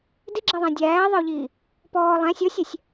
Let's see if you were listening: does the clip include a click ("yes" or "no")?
yes